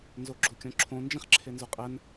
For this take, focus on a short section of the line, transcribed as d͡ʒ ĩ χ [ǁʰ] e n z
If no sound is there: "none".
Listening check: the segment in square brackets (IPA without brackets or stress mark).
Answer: ǁʰ